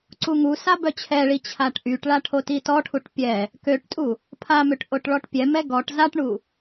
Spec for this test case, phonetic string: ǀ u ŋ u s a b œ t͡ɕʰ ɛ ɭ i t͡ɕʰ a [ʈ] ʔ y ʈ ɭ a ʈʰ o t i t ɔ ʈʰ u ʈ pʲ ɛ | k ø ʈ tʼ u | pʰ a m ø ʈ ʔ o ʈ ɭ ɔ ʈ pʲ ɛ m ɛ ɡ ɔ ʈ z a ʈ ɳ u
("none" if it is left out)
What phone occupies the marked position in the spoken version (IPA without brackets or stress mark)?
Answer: ʈ